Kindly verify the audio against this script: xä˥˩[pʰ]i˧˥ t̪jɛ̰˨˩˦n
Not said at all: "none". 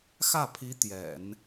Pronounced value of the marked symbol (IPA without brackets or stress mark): pʰ